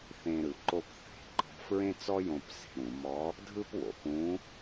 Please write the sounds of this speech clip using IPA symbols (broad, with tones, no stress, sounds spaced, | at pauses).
θ ẽ˧ ɾ ɯ˩˧ ǃ o˧ p θ e̤˩˧ ǃ ɔ̤˧ f ɹ ẽ˥ t͡s ɔ˥ j õ˧ p s e̤˩˧ ɾ ũ˩˧ m ɔ˧˥ | dʱ ɯ˥ p w o̰˩ p ũ˧˥